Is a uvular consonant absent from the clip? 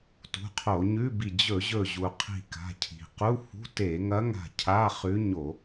no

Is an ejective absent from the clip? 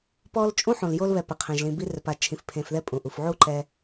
no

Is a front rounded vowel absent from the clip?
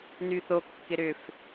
no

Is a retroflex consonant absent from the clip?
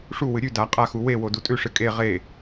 no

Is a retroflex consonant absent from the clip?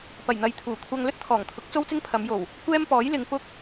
yes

